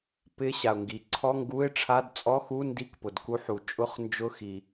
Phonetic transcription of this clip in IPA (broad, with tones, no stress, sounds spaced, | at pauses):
p ɪ˧˥˧ ɕ a˩ ʊ̯ ŋ ɡ i˩ ǀʰ ɔ˧˥˧ ŋ ɡ u˧˥˧ ɪ̯ ʈ͡ʂʰ a˧˥˧ d t͡sʼ ɔ˧˥˧ x u˧˥˧ n d i˧˥˧ k p ʊ˩ d k u˧˥˧ ħ u˩ t͡ʃʼ ʊ˧˥˧ χ n d͡ʒ ʊ˧˥˧ x i˩